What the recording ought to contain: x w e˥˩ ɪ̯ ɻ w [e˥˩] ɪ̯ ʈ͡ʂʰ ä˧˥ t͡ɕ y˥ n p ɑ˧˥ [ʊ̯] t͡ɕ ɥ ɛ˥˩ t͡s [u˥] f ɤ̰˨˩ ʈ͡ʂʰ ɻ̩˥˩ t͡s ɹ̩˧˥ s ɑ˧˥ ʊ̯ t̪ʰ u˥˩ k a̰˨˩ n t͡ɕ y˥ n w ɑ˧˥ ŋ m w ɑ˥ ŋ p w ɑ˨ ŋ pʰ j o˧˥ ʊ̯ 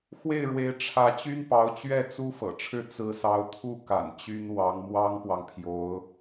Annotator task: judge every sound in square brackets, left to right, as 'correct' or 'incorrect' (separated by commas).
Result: incorrect, correct, correct